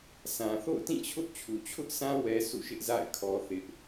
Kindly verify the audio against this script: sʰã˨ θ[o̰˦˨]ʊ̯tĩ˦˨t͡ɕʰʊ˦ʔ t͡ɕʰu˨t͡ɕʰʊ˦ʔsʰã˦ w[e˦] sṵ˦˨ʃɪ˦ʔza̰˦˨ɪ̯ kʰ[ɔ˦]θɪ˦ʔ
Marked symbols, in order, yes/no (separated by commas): yes, no, yes